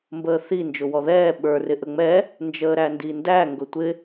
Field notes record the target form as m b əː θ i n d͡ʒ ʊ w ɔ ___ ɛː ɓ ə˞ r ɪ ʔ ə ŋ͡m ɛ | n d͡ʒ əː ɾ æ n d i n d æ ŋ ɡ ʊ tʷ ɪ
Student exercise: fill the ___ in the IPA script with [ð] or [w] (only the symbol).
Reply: ð